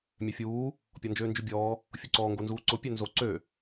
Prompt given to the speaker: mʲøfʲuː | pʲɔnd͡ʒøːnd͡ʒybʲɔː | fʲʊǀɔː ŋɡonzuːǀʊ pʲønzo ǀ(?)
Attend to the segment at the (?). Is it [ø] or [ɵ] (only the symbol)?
ø